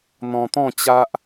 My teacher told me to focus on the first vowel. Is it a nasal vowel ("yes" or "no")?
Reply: yes